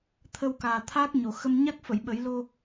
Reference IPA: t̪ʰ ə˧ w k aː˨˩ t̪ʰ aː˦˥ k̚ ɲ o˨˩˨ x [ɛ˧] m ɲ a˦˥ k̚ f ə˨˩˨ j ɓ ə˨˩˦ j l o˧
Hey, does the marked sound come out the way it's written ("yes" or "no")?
no